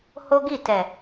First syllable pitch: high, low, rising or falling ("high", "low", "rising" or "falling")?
high